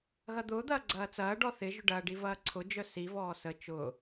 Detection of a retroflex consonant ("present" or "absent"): present